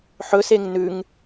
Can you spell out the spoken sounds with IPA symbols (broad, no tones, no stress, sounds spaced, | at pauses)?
ħ ɵ s e ŋ n ʉ ŋ